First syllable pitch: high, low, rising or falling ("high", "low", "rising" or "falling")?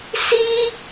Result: high